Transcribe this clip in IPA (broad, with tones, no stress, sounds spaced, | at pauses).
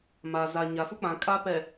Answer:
m a˨ z a˨ ɲ a˨ f u˦ k͡p ã˨ kʼ a˦ p ɛ˨